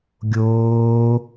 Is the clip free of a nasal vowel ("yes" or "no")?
yes